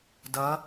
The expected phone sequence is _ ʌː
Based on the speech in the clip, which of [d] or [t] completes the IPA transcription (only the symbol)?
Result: d